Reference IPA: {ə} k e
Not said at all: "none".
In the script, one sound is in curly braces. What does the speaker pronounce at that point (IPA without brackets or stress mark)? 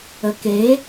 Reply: ə